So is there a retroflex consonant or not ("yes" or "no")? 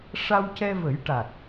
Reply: yes